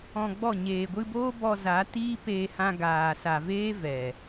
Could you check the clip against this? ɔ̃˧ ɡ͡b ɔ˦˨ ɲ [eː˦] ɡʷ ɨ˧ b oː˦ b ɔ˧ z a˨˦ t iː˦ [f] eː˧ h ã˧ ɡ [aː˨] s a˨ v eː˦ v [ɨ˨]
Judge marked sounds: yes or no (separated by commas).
no, no, yes, no